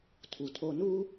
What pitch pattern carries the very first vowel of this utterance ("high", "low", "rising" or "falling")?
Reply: low